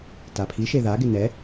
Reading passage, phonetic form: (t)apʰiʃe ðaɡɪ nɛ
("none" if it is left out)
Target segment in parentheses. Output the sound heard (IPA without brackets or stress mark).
t